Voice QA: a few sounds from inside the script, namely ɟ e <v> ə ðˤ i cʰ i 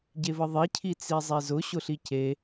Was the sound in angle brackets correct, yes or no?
yes